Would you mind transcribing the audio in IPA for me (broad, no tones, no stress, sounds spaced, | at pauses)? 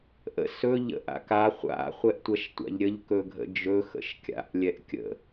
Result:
ʔ ə̰ s ɵ ʎ ə̰ ʔ a̰ k a χʷ a̰ χʷ ɛ ʔ tʷ ɐ ʃ tʷ a̰ ʎ ɾʲ ə ʎ k ɵ ɡʱ ə̰ d͡ʒ ɵ x ə̰ ʃ kʲ a̰ ʔ lʲ ɛ ʔ kʲ ə̰